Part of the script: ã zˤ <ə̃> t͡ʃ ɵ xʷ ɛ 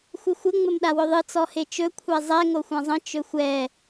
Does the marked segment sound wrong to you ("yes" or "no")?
no